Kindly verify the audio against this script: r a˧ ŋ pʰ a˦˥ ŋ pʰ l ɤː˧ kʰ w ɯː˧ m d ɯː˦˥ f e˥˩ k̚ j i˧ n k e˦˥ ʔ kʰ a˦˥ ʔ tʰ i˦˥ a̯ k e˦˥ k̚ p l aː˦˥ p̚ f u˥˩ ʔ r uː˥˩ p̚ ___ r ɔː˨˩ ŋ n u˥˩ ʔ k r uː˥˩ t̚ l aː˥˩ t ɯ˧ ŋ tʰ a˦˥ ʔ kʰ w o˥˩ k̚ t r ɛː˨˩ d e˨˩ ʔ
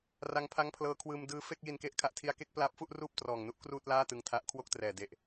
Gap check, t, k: t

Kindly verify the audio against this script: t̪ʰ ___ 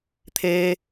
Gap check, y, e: e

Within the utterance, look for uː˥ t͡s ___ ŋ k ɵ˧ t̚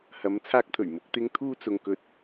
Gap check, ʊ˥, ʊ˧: ʊ˧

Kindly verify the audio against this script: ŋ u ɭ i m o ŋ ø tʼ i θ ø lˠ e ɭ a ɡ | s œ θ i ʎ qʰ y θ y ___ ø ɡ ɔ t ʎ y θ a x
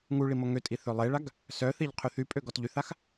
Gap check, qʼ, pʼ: pʼ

